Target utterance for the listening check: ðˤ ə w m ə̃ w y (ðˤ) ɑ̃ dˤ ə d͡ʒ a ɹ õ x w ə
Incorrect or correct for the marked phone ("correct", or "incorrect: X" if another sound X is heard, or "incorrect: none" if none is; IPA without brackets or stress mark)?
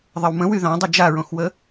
incorrect: ð